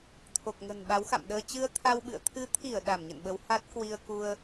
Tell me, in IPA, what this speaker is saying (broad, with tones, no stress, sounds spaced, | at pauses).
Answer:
t̪ʰ o˨˩ k̚ ŋ ə̤˨˩ n ɓ a˨˦ w x a̰˧˨ m ɗ əː˧ t͡ɕ ɨ˧ ə̯ t̪ʰ a˧ w ɓ ɨ̰˧˨ ə̯ t̪ʰ ɨ˨˦ t̪ʰ i˧˩ ə̯ ɗ a˧˩ m ɲ ə̰˧˨ n ɓ ə˨˦ w h a˦˥ t̚ k w i˧ ə̯ k u˧ ə̯